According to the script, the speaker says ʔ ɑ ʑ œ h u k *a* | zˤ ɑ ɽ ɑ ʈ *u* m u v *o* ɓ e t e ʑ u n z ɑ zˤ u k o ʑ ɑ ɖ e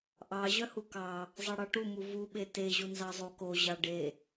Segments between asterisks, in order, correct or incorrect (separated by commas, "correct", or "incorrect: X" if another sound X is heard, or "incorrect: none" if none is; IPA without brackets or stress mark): incorrect: ɑ, correct, incorrect: u